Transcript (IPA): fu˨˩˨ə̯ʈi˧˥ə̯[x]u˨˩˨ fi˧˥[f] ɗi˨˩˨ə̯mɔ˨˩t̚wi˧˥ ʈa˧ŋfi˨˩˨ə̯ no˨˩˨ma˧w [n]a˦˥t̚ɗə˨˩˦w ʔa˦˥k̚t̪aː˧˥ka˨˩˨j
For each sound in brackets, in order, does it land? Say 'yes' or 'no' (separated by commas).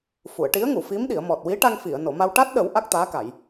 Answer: no, no, no